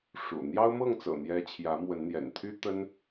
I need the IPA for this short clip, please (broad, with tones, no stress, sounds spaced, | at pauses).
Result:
ʂ ṵ˨˩ n̪ j ɑ˦ ʊ̯ m ɤ˥˨ ŋ t͡s ɤ̰˨˩ n̪ j ɛ˦ t͡ɕʰ j ä˨˦ m w ə˨˦ n n̪ j ɛ̰˨˩ n t̪ʰ y˦ t̪ ə˦ n